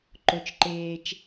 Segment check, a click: present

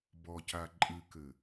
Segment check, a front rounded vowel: absent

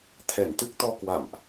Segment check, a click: absent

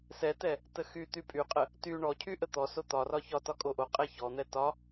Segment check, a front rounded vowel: present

